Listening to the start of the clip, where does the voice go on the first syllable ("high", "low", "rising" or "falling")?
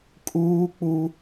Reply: high